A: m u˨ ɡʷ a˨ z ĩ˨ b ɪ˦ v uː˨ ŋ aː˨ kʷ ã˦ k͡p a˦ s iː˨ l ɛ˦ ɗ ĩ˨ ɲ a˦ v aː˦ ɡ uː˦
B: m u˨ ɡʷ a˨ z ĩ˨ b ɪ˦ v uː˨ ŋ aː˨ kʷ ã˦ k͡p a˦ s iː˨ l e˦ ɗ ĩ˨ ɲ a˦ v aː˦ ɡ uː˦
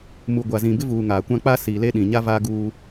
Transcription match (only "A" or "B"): B